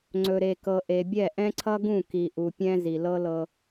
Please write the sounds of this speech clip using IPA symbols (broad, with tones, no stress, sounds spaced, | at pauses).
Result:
ŋ͡ǀ ɵ˨ ɾ e˨ k ɤ˨ ʔ e˨ bʲ ɛ˦˨ ʔ ɛ̃˦ ǀʰ ʌ˦ ɡ ũ˦˨ k i˨ ʔ u˨ pʲ ɛ̃˦ z i˨ l ɤ˦ l ɤ˦